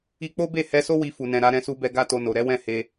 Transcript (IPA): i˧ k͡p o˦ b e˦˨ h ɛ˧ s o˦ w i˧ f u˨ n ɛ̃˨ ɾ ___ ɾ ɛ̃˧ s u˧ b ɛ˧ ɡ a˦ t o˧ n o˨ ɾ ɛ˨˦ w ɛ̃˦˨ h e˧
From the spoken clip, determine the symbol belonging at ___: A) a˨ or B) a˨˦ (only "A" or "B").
B